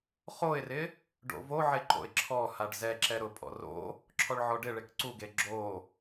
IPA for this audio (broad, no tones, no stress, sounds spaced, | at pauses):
χ o ɪ̯ r ɪ | ɖ o̰ v o ʕ e ǃ o̰ ɪ̯ ǁʰ ɔ h a ɖ z ɛ ǁ ɛ ɾ ʊ pʼ ɔ̰ r o̰ | ǁʰ ɔ ɭ ʕ ɔ ɖ ɪ ɭ e k ǀ u ɡ e ɡ͡ǁ o